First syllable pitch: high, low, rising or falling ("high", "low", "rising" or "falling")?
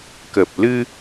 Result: low